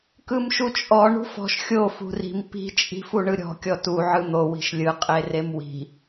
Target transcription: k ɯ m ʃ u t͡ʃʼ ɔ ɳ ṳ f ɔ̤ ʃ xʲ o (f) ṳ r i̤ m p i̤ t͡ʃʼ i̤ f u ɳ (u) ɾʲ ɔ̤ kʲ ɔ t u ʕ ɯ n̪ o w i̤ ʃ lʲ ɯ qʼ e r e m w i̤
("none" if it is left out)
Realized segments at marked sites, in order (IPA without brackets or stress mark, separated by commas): f, ɯ